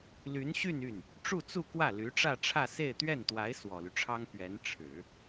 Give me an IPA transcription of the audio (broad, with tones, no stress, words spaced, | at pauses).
ly˧˥nɕy˥˧n y˥˩n | ʈ͡ʂu˥˧t͡su˥˧kwä˥˩ ly˧˥ʈ͡ʂä˥˧ʈ͡ʂʰä˥˧se˥˧ɪ̯ t̪ɥɛ˥˩nt̪wa˧˥ɪ̯ swɔ˨˩ly˦ʈ͡ʂʰɑ˥ŋ pɥɛ˧˥nʈ͡ʂʰɻ̩˨˩˦